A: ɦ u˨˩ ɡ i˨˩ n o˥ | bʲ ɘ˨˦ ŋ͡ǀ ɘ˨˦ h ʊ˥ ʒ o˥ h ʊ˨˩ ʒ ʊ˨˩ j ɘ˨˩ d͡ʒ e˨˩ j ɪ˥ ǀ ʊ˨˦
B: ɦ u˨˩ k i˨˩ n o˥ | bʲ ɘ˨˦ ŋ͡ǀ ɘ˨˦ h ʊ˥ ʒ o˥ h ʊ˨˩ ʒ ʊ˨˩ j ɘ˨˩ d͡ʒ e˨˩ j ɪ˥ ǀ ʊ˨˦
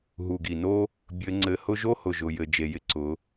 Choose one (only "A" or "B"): A